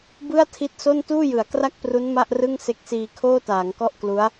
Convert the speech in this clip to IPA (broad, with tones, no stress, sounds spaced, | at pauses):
b ɯ˥˩ a̯ tʰ i˦˥ t̚ s o˥˩ n t uː˥˩ j ɯ˩˦ a̯ k r a˥˩ k̚ p r u˦˥ n m a˥˩ ʔ r ɯ˥˩ ŋ s e˦˥ k̚ s iː˧ kʰ oː˥˩ t aː˩˦ ŋ k ɔ˥˩ ʔ k l u˦˥ a̯